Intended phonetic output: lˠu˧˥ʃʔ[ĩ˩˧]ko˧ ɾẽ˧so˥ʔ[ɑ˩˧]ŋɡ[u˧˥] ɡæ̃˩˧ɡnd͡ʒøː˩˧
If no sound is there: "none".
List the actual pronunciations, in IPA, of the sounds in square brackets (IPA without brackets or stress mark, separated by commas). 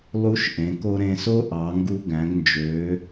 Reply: ẽ˩˧, ɑ˩˧, u˧